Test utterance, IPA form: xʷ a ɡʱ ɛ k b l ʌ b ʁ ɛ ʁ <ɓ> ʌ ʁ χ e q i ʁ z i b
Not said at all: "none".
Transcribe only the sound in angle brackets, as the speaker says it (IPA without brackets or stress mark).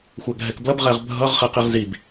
bʱ